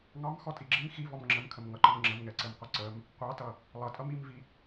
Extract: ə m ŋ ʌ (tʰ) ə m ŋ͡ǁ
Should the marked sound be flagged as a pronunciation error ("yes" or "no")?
yes